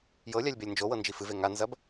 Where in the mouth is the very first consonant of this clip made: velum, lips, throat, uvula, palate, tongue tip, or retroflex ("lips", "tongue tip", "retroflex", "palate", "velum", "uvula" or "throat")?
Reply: palate